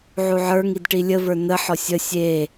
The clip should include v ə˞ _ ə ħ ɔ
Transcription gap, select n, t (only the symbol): n